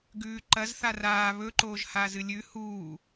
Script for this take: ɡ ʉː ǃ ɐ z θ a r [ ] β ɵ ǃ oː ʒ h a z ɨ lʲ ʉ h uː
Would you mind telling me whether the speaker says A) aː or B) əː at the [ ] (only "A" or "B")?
A